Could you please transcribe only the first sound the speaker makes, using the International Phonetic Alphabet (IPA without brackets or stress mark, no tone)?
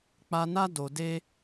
k͡p